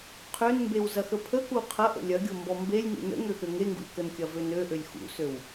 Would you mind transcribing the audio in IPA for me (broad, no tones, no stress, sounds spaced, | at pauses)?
qʰ ø n m b e w z ɐ x ə pʰ ə k u qʰ ɐ ʔ ə̰ lʲ ɐ ɡʲ o m b ɔ m b e lʲ ŋ ṵ n ə̰ ŋ ø x ø ŋ e ŋ ɡ ṵ lʲ k ə n kʲ ɐ v ø n ø ʔ ø lʲ x ṵ s ø w